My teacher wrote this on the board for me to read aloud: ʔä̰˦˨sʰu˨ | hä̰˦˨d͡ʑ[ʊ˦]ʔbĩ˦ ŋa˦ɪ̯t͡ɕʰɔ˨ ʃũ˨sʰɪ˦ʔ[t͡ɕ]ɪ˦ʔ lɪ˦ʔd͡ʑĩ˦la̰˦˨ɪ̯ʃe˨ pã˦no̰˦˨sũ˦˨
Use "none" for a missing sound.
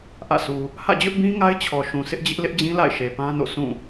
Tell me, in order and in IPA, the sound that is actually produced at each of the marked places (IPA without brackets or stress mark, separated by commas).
ʊ˦, d͡ʑ